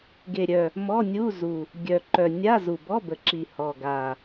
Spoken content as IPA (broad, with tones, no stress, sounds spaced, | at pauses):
ɡ e˨˩ ɾʲ œ˨˩ | m ɔ˧˥˧ nʲ u˧˥˧ z u˨˩ | ɡʲ œ˨˩ ǃ œ˨˩ nʲ a˧˥˧ z u˨˩ b ɔ˧˥˧ b ə˨˩ ǁ i˨˩ h ɔ˨˩ ɡ a˨˩